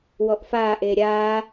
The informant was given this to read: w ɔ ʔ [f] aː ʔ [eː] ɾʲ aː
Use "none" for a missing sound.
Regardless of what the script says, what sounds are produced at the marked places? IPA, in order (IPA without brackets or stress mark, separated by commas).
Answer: f, eː